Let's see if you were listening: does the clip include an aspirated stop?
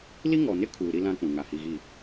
yes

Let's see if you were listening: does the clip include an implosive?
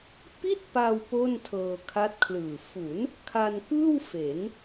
no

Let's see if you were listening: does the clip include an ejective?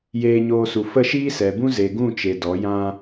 no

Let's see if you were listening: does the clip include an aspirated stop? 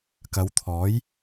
yes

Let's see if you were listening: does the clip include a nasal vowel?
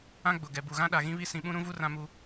yes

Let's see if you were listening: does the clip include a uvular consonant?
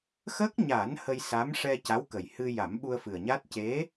no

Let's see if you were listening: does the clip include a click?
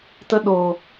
no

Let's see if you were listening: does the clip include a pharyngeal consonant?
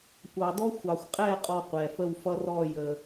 no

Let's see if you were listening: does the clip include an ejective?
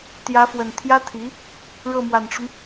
no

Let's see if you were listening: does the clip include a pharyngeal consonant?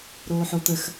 yes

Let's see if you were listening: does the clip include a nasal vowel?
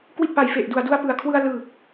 no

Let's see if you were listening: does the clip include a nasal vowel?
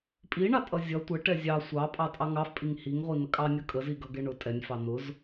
no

